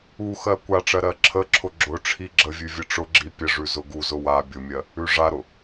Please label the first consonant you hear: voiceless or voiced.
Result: voiceless